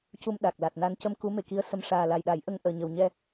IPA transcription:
c u˧ m ɗ a˨˩ k̚ l a˨˩ t̚ n a˧ n c ə˧ m k u˧˥ m e˨˩ k i˧˥ ə̯ s ə˧ m ʂ aː˨˩ l a˨˩ j ɗ a˨˩˦ j ʔ ə˧ ŋ ʔ əː˨˩ ɲ ə˨˩ w ɲ ɛ˧

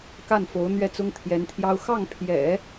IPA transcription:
k a˥˩ n f o˧˥ ʊ̯ n̪ ɥ ɛ˥˩ t͡s ʊ˥ ŋ t̪ʰ j ɛ˧˥ n t̪ʰ j ɑ˥ ʊ̯ x ɑ˥˩ ŋ pʰ j ɛ̰˨˩˦

